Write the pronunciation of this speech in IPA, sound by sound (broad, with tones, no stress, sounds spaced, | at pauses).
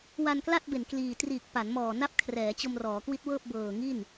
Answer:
w a˧ n k l a˥˩ t̚ b e˨˩ n k l iː˨˩ t r iː˨˩ k̚ p a˩˦ n m ɔː˨˩ n a˦˥ p̚ kʰ r ɛː˩˦ t͡ɕ o˧ m r ɔː˩˦ k w i˦˥ t̚ w ɤː˥˩ p̚ b ɤː˨˩ ŋ i˥˩ n